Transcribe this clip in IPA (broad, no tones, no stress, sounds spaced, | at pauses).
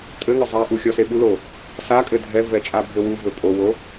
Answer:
tʼ ɘ ŋ ɘ zˤ a ʔ u xʲ ɔ s e ɓ u l o | s a kʼ ɘ dʱ ɛ v ɛ t͡ʃʼ a bʱ ɘ w u v ɘ pʼ o w o